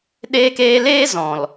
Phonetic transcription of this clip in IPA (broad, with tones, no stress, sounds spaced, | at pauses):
ɗ eː˧ k eː˧ l eː˦ z ɔ̃˨ l